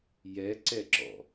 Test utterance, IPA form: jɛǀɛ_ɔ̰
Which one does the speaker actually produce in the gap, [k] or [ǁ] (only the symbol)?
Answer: ǁ